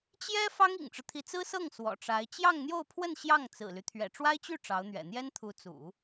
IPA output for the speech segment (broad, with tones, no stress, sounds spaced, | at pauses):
t͡ɕ j ɛ˥ f ɑ˥ ŋ ḭ˨˩ ŋ ʈ͡ʂ ɻ̩˦ t̪ʰ i˧˥ t͡s ɹ̩˥ s ɤ˥˩ ŋ s w ɔ̰˨˩ ʈ͡ʂ a˧˥ ɪ̯ t͡ɕ j ɑ˥˧ ŋ n̪ j o˥˧ ʊ̯ pʰ w ə˥˧ n ɕ j ɑ˥˩ ŋ t͡s ɹ̩˨˩ l y˦ t̪ʰ ɥ ɛ̰˨˩ ʈ͡ʂ w a˥ ɪ̯ t͡ɕ y˥˩ ʈ͡ʂ ɑ˧˥ ʊ̯ n̪ ɥ ɛ̰˨˩ n̪ j ɛ˥ n t̪ʰ u˧˥ t͡s ṵ˨˩˦